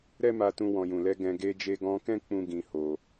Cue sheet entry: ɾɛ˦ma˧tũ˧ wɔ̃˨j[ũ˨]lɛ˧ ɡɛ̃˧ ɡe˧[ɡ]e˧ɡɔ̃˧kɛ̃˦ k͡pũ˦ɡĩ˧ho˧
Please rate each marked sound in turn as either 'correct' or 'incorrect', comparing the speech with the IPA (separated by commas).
correct, incorrect